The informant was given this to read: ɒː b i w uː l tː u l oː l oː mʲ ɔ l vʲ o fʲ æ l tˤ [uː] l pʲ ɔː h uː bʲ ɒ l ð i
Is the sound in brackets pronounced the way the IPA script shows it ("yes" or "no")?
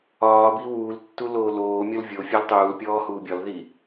yes